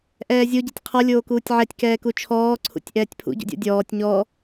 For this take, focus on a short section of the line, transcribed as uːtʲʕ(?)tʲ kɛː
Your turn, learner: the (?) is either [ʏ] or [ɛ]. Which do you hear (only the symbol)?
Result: ɛ